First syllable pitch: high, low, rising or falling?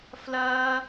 high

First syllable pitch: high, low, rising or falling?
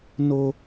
high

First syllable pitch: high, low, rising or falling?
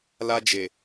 high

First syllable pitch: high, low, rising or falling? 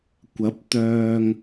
rising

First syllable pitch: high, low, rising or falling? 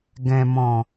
low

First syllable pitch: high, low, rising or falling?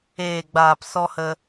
low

